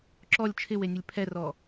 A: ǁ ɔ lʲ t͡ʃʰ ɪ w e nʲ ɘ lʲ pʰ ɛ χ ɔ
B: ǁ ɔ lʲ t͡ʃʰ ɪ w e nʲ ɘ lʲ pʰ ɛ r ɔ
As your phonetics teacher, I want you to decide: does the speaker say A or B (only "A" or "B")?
B